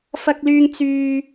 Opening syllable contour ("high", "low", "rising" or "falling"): high